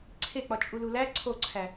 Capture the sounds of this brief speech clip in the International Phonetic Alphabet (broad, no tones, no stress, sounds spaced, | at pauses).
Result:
ǀʰ e k͡p ɒ t͡ʃʼ u l u l æ ǀʰ o ǀʰ æ